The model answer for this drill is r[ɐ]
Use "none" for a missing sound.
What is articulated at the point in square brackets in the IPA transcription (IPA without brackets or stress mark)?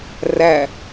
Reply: æ